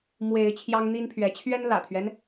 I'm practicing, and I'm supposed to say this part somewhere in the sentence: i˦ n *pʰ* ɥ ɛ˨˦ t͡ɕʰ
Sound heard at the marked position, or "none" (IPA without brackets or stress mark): pʰ